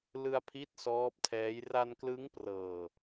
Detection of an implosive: absent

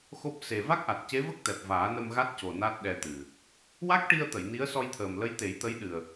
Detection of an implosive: present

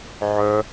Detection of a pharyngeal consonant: present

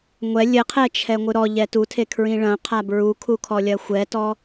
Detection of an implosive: absent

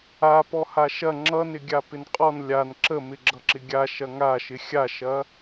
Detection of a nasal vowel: absent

